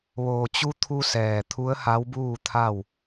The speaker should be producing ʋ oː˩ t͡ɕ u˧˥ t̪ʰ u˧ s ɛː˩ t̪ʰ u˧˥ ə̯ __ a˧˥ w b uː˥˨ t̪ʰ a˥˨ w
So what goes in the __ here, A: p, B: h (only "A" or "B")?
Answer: B